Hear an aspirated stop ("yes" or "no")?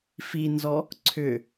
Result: yes